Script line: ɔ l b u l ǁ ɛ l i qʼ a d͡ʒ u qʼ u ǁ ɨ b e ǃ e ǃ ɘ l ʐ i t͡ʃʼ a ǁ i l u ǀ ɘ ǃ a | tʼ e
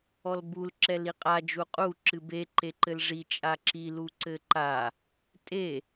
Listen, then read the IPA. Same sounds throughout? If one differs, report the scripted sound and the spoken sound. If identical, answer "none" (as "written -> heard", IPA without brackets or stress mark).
none